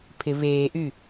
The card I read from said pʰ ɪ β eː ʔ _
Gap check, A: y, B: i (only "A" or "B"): A